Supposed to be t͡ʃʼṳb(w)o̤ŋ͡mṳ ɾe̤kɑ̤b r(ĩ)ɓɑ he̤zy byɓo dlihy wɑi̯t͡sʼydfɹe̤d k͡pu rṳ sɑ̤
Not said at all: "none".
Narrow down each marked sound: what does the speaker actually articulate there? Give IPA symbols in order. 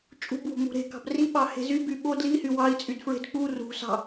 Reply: w, i

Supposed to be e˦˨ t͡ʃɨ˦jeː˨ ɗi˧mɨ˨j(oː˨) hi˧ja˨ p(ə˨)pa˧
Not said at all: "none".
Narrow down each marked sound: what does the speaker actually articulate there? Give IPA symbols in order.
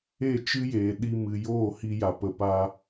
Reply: oː˦˨, ə˨

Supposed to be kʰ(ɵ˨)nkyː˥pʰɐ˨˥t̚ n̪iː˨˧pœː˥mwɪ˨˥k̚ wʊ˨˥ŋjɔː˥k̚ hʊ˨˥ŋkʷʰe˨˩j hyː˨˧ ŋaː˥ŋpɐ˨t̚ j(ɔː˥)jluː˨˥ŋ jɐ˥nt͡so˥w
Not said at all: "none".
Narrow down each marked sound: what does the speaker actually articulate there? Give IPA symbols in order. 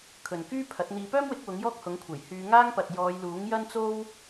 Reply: ɵ˨, ɔː˨˧

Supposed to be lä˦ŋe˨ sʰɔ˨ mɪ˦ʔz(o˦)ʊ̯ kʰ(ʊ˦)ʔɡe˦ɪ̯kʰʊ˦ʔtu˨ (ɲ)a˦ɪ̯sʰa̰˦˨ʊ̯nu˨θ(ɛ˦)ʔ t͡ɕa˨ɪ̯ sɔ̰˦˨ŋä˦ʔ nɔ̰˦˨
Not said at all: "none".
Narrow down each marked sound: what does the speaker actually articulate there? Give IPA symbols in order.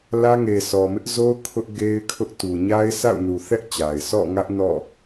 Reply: o˦, ʊ˦, ɲ, ɛ˦

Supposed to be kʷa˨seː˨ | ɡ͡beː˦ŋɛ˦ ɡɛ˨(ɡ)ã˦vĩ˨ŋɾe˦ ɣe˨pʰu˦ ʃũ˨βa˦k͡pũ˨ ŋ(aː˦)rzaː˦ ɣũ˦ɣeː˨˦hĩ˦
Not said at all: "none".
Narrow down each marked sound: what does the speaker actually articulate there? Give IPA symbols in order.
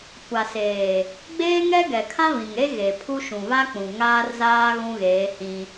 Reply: kʰ, aː˦

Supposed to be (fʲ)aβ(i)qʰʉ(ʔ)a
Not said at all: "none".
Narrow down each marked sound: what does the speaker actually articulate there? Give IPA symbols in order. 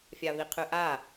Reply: fʲ, i, ʔ

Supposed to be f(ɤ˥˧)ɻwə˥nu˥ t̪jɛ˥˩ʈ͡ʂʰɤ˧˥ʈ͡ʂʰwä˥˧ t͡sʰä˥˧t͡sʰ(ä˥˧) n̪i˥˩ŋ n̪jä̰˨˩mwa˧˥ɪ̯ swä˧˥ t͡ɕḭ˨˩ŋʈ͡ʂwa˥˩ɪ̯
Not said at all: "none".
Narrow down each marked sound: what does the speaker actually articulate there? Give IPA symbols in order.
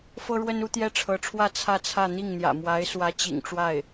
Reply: ɤ˥, ä˥˧

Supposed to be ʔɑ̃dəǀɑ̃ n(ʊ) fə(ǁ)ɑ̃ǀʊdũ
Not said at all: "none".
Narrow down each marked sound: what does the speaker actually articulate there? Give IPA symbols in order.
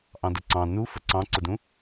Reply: u, ǀ

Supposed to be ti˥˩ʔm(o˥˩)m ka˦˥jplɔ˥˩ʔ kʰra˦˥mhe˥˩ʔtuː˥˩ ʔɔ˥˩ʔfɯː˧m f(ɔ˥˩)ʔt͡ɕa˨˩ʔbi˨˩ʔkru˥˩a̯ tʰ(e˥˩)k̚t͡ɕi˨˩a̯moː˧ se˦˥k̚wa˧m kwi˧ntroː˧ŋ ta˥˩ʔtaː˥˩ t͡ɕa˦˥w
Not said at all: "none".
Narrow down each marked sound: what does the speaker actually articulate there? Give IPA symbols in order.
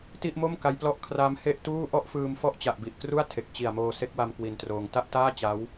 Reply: o˥˩, ɔ˥˩, e˨˩

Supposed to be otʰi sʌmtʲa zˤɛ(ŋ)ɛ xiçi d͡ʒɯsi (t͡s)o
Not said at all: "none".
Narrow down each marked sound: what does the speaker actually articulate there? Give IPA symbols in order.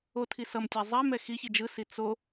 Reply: m, t͡s

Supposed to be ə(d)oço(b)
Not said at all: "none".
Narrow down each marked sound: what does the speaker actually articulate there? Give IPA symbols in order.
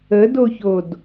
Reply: d, d

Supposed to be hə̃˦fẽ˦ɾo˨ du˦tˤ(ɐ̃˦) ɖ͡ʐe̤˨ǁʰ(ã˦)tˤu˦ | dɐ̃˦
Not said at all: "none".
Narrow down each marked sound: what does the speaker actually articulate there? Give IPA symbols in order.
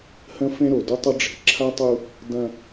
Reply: ɐ˦, a˦

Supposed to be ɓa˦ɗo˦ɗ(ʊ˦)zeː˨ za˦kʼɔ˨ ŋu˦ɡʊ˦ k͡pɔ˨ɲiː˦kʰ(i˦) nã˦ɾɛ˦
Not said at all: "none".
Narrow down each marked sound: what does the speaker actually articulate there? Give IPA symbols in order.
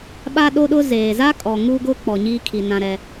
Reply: ʊ˦, i˨

